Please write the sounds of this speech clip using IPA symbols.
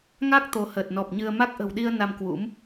ŋa˦˥k̚ t̪o˨˦həː˨˩t̚nɔ˨˩p̚ ɲɨ˧ə̯ ma˦˥k̚ʔə̤˨˩wɗi˧ə̯ na˧mkwṵ˧˥m

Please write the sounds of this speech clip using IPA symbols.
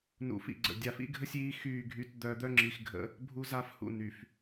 nṵ˨ fḭ˨ɡ͡ǀə̰˨ dʲa˨fḭ˦ɡʱə˦sʲiː˨˦ xyː˦˨ɡʱy˦t d̪œ˨˦d̪œ˦ŋ͡ǁi˨xɡʱə̰˦ | bʱu˦za˦f hṵ˨ny˨f

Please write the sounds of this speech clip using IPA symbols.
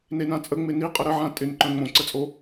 nenãt͡sʼə ŋ͡mɪniqʼə ɾəʕã tʼɪnǃœ̃ ŋ͡mõǀət͡sʼo

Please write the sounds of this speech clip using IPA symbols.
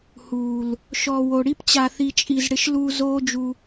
huː˨l | ʃɔ˨ wo˨ ɽi˦pt͡ɕa˧θi˧ t͡ʃʼi˧z ɽɪ˧ʃluː˧ zoː˦d͡ʒu˧

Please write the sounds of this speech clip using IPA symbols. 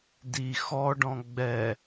di xɔɖɔ̃ ɡ͡bɛ

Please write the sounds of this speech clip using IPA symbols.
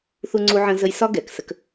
θu˥ŋ͡ǀu˥ʕə̃ː˥ zə˥j sɒ˥ ɡɛ˩ksə˥k

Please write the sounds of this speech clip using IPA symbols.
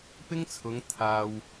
pɪ˥ŋt͡sʰʊ˨˧ŋ t̪ʰaː˨w

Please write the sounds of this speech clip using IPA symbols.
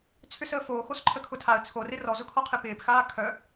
t͡sʰʏsəːfoː xosǃʰəkʰʊtʰaə̯ t͡sʰorɪ rɔzʊkʰɔqʰɪ pɪːpxaː kʰœ

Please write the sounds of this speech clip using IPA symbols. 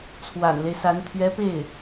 t͡sʰwa̰˨˩nle˦ɪ̯sa˧˥n t̪ʰɥɛ˧˥pe˥˩ɪ̯

